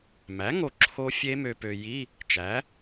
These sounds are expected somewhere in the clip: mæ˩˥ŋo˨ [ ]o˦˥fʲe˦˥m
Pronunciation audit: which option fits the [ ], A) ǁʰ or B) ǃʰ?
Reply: A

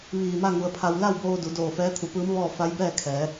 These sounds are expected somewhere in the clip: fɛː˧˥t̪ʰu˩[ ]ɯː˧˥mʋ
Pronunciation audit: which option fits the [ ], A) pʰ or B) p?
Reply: B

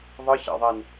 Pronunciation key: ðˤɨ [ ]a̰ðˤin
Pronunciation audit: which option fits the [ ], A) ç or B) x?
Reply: A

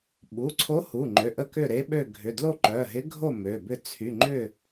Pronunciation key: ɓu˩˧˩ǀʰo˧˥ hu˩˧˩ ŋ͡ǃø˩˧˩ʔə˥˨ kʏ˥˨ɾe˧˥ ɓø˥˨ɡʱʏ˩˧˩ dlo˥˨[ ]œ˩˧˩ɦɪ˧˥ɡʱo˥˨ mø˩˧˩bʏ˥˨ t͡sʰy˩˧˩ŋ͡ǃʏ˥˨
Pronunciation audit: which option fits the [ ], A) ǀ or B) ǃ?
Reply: B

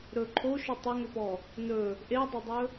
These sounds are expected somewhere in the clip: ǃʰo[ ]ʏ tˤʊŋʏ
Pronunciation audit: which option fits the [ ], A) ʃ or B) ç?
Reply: A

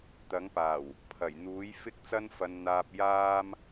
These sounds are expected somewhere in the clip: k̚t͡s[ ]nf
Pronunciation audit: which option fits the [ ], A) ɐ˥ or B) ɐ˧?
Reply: A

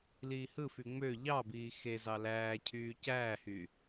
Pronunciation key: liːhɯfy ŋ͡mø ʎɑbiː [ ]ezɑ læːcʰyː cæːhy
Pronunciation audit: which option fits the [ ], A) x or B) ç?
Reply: A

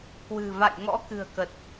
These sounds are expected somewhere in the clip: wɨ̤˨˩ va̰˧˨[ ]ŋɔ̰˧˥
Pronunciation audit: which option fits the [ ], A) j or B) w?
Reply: A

